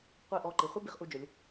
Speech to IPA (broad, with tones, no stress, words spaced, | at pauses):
qʷi˧˩ʔɔ˧˩ǃi˩˧ χʷɛ˥bi˩˧χʔu˧d͡ʒʊ˩˧lʲ